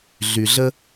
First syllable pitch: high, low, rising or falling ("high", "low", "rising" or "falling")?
low